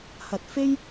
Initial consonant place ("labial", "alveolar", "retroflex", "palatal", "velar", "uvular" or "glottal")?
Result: glottal